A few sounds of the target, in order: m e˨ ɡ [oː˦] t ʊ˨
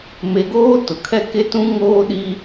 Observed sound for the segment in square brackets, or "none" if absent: oː˦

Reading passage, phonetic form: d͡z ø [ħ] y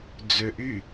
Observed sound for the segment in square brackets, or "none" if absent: ʔ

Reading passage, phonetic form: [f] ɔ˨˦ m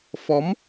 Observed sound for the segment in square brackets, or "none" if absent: f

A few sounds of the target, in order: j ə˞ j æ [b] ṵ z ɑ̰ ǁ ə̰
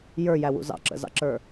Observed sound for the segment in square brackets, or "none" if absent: w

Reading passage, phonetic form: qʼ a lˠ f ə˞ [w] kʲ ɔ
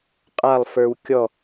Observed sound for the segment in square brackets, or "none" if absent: w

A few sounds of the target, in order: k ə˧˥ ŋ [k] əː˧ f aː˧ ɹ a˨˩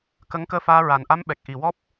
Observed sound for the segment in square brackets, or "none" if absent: k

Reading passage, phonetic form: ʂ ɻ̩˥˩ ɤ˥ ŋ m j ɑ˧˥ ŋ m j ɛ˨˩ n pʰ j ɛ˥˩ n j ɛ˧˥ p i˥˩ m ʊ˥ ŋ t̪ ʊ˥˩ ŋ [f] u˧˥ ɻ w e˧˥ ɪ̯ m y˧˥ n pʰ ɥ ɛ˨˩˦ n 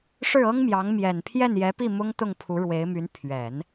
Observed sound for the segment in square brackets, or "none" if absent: pʰ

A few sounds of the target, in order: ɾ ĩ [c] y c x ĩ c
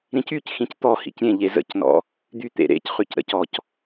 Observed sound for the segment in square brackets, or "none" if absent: c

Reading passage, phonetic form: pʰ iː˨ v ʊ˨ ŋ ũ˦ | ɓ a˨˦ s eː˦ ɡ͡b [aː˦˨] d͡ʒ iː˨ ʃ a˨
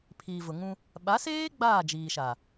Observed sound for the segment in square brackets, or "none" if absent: aː˦˨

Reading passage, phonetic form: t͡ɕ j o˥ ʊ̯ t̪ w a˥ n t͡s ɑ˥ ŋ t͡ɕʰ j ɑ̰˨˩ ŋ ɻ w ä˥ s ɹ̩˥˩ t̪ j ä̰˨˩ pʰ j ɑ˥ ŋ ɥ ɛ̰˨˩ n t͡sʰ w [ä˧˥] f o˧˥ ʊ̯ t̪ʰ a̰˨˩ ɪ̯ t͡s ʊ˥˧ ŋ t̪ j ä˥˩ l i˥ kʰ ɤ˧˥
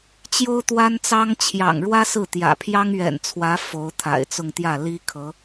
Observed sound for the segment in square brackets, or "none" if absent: ä˧˥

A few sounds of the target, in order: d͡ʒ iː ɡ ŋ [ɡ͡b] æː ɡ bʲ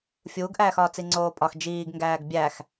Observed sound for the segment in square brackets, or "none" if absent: ɡ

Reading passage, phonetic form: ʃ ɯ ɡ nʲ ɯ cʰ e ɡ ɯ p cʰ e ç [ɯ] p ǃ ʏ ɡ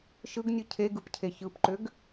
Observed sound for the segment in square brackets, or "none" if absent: ɯ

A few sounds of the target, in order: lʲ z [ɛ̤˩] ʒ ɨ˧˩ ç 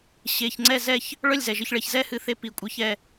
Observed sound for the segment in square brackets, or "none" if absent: ɛ˩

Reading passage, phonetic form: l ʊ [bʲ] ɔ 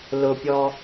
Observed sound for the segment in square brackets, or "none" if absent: pʲ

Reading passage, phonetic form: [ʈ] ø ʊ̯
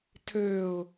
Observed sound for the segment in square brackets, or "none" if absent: tʰ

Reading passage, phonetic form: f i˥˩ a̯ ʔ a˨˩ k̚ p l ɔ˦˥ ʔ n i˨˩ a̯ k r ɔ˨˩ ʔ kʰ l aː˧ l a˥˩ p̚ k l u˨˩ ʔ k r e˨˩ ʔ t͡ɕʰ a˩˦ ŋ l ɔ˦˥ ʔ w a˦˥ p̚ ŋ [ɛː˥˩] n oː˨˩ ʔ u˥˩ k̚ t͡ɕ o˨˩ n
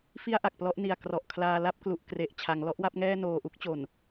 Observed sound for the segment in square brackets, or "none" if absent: ɛː˥˩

